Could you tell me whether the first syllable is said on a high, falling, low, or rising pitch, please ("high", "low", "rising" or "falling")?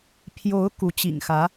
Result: rising